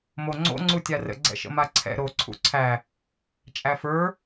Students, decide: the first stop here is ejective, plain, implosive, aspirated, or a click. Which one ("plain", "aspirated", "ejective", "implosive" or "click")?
click